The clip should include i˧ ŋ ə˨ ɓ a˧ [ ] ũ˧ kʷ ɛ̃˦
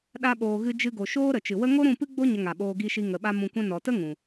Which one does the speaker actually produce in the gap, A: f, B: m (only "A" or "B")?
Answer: B